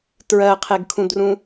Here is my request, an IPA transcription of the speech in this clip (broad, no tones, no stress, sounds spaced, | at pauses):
t ɹ ɜ qʰ e ɡ kʰ ũ d r ũ